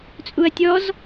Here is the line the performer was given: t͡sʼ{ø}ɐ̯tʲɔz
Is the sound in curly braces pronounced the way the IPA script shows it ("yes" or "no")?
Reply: no